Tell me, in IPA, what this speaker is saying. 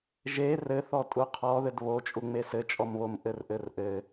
ʒ e r ɘ θ ɔ tʼ u qʰ ɔ ð ɘ d β o t͡ʃʼ u ŋ͡m e s ɘ t͡ʃʼ ɔ m β o m ʔ ɘ r ʔ ɘ r ʔ ɘ

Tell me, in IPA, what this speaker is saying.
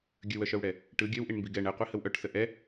ɡʲ ə w œ ʃ œ w ɽ ɛ | ʈ ɯ ɡʲ œ w ʔ i ɳ m b i ɡ ɛ ɳ ɛ qʷ i h ə w ʔ œ ʈ s ə ʔ ɛ

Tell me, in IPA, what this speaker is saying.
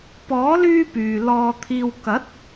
p ɔː˨˥ l yː˥ p yː˨ l ɔː˧ t̪ʰ iː˧ w k ɐ˨˥ t̚

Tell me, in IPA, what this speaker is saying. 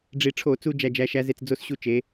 ɖ͡ʐ i˧ ʈ͡ʂʰ o˧˩˧ t͡s u˧ d͡ʒ æ˧ d͡ʒ æ˨˥ ʃ æ˨˥ z e˧ t͡s d͡z o˧ s ɕ u˧ t͡ʃ e˩˧

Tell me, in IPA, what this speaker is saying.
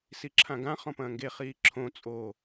s i ǁʰ ã ɡ ã χ ɔ̃ p ɐ̃ː ŋ ɡ e χ iː ǁʰ õ t͡sʼ o

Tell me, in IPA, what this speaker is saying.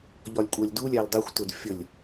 ʎ ɒ lʲ kʷʼ ɜ lʲ d u lʲ æ l dˤ i xʷ t ʊ d fʲ ə lʲ

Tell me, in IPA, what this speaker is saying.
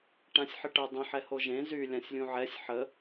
ʈ ã sʲ ħ ə ʈ ə dˤ ə̃ ħ ɛ h o ʒ ẽ z y lʲ ã sʲ lʲ ũ ʕ ɛ sʲ ħ ə

